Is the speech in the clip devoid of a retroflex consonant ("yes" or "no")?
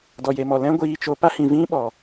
yes